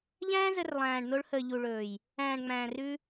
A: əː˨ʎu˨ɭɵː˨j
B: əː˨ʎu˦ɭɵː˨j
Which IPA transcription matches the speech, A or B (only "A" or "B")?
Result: A